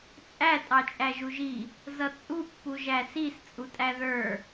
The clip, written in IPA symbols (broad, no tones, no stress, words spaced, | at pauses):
t͡sʼæ tʼɑt͡ʃʼæʒuʒi | zʌt͡sʼu pːuʒæsis t͡sʼutʼæðə˞